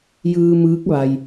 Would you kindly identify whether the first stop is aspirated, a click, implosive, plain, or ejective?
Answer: plain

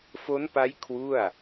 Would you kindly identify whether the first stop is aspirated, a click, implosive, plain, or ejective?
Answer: plain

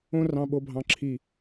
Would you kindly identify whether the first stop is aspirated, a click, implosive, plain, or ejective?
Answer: implosive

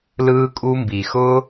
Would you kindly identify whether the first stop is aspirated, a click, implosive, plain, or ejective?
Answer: ejective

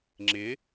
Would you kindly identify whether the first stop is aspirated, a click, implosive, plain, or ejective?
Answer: click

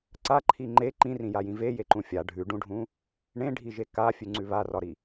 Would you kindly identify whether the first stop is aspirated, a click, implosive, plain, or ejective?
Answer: click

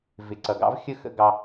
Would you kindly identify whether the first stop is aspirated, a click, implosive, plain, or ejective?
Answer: click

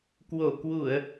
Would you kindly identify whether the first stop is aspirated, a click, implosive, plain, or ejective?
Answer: plain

